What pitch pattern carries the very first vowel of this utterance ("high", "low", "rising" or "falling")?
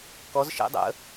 rising